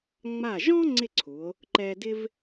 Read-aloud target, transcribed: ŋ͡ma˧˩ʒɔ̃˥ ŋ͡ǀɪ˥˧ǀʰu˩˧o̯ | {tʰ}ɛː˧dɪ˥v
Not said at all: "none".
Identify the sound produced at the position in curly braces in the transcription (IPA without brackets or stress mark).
ǃ